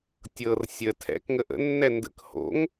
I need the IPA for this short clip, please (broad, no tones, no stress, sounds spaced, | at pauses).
tʲ ɤ r sʲ ə tʰ ɛ̰ k ŋ ə ʔ ə̰ nː ɛ n d ə̰ k h o̰ ŋ